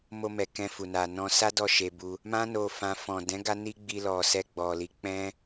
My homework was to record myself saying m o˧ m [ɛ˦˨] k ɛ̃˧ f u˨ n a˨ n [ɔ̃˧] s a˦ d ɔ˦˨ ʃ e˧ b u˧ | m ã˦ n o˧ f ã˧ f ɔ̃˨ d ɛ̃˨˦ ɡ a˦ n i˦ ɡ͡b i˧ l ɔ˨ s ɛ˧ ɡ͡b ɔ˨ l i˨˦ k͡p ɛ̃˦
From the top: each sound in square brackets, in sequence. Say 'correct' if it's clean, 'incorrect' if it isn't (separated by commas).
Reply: incorrect, correct